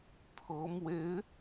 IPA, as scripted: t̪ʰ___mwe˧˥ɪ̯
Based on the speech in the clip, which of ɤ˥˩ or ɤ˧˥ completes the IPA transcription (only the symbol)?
ɤ˧˥